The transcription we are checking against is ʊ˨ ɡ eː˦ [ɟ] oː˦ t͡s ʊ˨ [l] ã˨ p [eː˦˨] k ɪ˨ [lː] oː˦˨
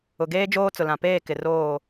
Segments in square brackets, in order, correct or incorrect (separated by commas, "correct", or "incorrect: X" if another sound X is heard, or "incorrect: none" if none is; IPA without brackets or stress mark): incorrect: d͡ʒ, correct, correct, incorrect: r